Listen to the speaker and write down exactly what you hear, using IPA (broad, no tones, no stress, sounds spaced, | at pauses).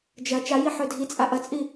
d͡ʒ ɐ t͡ʃ a j i ħ ɵ dʱ i t͡sʼ a ʔ ɐ t͡sʼ i